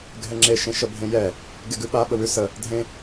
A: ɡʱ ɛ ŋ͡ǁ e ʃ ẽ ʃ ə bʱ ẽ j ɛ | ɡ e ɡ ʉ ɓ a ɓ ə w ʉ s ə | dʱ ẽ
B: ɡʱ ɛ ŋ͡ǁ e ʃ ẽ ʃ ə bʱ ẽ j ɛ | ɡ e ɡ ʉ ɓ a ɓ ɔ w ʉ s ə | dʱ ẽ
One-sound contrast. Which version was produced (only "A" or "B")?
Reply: A